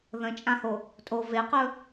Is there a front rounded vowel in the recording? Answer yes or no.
no